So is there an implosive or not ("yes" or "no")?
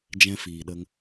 yes